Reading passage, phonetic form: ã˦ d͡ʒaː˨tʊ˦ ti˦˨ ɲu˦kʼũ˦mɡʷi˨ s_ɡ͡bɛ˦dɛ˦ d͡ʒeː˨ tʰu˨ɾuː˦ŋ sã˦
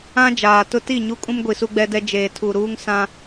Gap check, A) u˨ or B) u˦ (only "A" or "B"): B